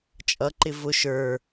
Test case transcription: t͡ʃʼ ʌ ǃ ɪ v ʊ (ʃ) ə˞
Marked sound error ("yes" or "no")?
no